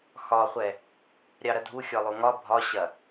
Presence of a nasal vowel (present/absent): absent